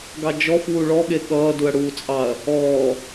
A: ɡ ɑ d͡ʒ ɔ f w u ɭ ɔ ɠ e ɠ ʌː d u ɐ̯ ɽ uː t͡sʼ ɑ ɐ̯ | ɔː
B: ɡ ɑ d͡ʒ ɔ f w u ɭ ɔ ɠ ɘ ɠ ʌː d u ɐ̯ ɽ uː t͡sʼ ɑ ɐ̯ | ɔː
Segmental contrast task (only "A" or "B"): A